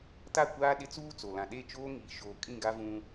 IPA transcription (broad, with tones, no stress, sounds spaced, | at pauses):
t a˦˨ kʷ aː˦ ɗ ɪ˦ t͡s uː˦ t͡s o˨ l ã˨ ɗ e˦˨ t͡ʃ oː˦ ŋ iː˨ ʃ oː˨ kʼ ĩ˦˨ ɡ a˦ v ũ˦